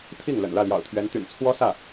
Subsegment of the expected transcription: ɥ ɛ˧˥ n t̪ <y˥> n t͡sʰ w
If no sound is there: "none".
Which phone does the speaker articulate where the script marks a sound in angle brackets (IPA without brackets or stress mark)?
y̰˨˩